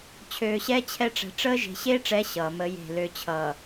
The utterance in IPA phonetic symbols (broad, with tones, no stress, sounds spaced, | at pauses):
t͡ɕʰ øː˨ ɕ ɛː˦ t͡ɕʰ ɛ˦ ʈ͡ʂ ɛ̤˨ ʈ͡ʂ əː˦ ʒ e̤˨ ɕ eː˦ ʈ͡ʂ ɛ˨˦ ɕ ʌː˨ m ə˦ j e̤˦˨ l ø˨ t͡ɕʰ ʌː˨